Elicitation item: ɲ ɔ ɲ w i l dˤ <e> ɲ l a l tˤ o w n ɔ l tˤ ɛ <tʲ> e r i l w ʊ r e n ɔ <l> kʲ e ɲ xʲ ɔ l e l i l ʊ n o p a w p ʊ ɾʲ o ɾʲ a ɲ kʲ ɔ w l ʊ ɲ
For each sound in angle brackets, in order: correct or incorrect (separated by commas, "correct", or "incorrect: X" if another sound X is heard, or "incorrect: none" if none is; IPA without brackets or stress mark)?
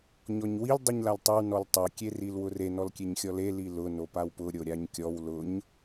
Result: incorrect: i, incorrect: kʲ, correct